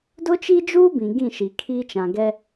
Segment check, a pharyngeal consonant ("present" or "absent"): absent